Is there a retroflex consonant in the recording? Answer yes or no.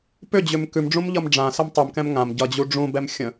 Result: yes